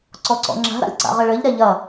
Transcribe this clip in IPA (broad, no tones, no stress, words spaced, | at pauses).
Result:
ǀɔǀɔ̰ŋ͡ǁa̤ ɾa̰lʲǀa̰ʁɘɭɘʎ ɾɛʎɐ